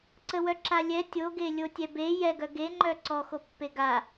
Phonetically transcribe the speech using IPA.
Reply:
ǀ ə w œ ǁ a lʲ ɛ tʲ o ɡ e lʲ o tʲ ɛ b e j ɛ ɡ œ ɡ e ŋ͡ǃ œ ǀ ɔ x o pː e ɡ a

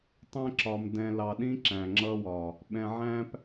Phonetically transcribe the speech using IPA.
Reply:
tˤ ɛ̃˦ ǁ ɒ˨ m d ɛ̃˨ l ɑ˨ ɗ ĩ˦ ǁ æ̃˨ ŋ͡ǁ ʌ˦ w ɒ˨ | ɓ ɛ̃˨ ʕ æ̃˦ p

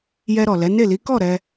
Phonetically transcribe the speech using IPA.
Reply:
j ɛ˧ ɾ ɔ˨ l ɛ˨˦ n e˦˨ l i˨˦ k ɔ˦˨ ɾ ɛ˧

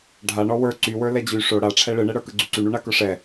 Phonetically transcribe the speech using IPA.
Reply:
ɖʱ a ɳ ɔ w ə˞ ǀ y w ə˞ l ɛ d͡ʑ y ʂ o ɽ a ʈ͡ʂʰ ɛ ɭ ɯ ɳ ɛ ɽ ə˞ k ɯ ɡ͡ǀ y ǀ y ɳ u ɳ a k ə˞ ʂ ɛ

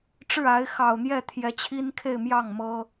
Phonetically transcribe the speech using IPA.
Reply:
ʈ͡ʂ ɻ̩˥˩ a˧˥ ɪ̯ x ɑ˨˩ ʊ̯ n̪ j ɛ˥˩ t̪ʰ j ɛ˧˥ t͡ɕʰ i˥ n kʰ e˥˧ ɪ̯ m j ɑ˥˩ ŋ m ɤ˥

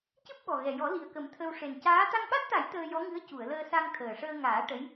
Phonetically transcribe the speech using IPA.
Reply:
c ɨ˦˥ p̚ ɓ ɔ˨˩ ɣ ɛ˨˩ j ɔ˨˩˦ l i˨˩ ə̯ k ə˨˩˦ m t̪ʰ ə˧ w ʂ e˨˩ n c aː˧˥ t̪ a˧ ŋ ɓ a˦˥ t̚ t̪ a˨˩˦ j t̪ əː˧ j ɔ˧˥ ŋ ɨ˧˥ ə̯ c u˨˩˨ ə̯ l əː˧ s a˧ ŋ t̪ʰ əː˨˩ ʂ əː˧ ŋ aː˨˩˦ ʈ ə˧˥ j

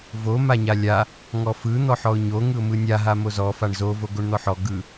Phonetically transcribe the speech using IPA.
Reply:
v o m a ɲ a lʲ a | ŋ ɔ f ɯ n̪ ɔ ħ ɔ ʊ̯ ɲ o ŋ ɯ ʊ̯ m ɯ nʲ a ɦ a m o z ɔ f a ɳ z o v o ɡ o ɳ n̪ ɔ ħ ɔ ɡ ɯ

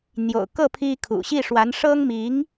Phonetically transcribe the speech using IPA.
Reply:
n̪ j o̰˨˩ ʊ̯ k ɤ˥˩ pʰ i˥ kʰ ṵ˨˩ ɕ i˥˩ ʂ w a˧˥ n ʂ ɤ˥ ŋ m i˧˥ ŋ

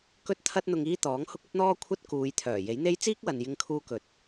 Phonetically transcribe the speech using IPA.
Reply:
k ɵ˥ t̚ t̪ʰ ɐ˥ t̚ n̪ ʊ˧ ŋ iː˥ t̪ ɔː˨˥ ŋ h ʊ˥ k̚ ɵ˥ t̚ n̪ ɔː˥ kʷʰ ɐ˥ t̚ k uː˨˧ j t̪ʰ œː˨˩ j e˨˥ j n̪ e˥ j t͡s iː˥ k̚ w ɐ˨ n j ɪ˧ ŋ kʰ uː˧ k ɵ˨˥ t̚

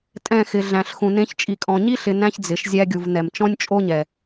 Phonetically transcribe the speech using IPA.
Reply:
tʼ ɛ̃˦˨ x ɪ˨ ɮ æ̃˨ ɬ x ũ˨ n ẽ˧ ç t͡ʃʼ i˨ kʼ ɔ̃˨ ɲ i˦ ɬ ɪ˧ n æ̃˦ ç d͡z ɪ˨ ʃ zʲ æ˧ ɡʲ u˨ v n ɛ˨ m t͡ʃ ɔ̃˦ nʲ t͡ʃʼ o˦ ɲ ɛ˨

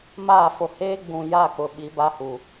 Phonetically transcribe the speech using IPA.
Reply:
m aː˦˨ f o˨ h eː˦ ɡ͡b ũ˨ j a˦˨ k͡p ʊ˨ ɓ i˨˦ b a˦ h u˨

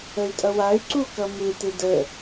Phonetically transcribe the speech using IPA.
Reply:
ə y̯ tʼ ʌ w a y̯ ǀ u k ʌ m ɯ t ɪ d ə

